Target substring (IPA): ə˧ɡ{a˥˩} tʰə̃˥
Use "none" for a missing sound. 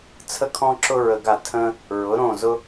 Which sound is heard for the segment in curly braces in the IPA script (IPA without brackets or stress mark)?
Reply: a˥˩